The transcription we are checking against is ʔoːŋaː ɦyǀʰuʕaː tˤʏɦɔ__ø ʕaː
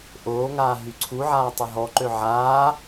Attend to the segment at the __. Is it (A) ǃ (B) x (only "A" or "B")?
A